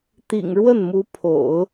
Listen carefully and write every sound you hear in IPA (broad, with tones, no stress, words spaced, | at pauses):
t̪ḭ˨˩ŋ ɻwə˥˩nmu˧˥ pʰo̰˨˩˦ʊ̯